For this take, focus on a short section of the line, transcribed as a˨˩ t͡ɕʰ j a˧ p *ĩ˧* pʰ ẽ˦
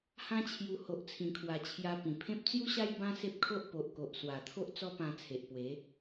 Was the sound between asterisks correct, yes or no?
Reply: no